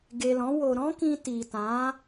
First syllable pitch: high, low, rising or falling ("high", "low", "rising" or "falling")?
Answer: low